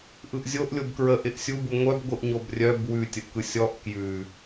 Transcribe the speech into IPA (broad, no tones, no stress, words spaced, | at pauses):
ʔɯʔzʲoʔ lʲobkɹə ʔɪʔsʲubu ŋʷœbɡʷɯʔ ɲobrʲœb wʉtʲəʔkɯ sʲɔʔ kjʉ